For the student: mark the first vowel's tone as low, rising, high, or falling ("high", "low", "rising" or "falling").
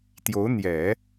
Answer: rising